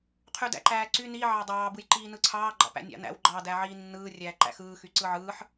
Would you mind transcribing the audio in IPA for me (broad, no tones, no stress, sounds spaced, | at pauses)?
qʰ y d æ̰ ǃ æː ǀ y n i ʕ ɑ dˤ ɑː b ɯ j ǃ iː n ɯ ǀʰ ɑː ɡ͡ǃ ɑ̰ p æ̰ nʲ ɑ̰ n æ̰ w ɡ͡ǃ ɑ d æ ʕ iː nː ɯː rʲ æː ǃ æ̰ x ɯː x y ǀ ɯ ʕ ɯː ħ